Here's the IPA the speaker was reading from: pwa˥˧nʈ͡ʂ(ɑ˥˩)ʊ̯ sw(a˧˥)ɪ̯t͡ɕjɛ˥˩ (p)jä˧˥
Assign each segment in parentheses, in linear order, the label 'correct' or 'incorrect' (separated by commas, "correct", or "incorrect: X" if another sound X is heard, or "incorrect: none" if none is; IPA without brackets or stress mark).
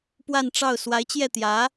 correct, correct, incorrect: t̪